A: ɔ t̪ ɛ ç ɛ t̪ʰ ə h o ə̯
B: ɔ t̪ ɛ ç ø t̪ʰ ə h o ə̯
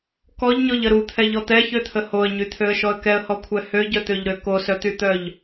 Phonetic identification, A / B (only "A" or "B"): B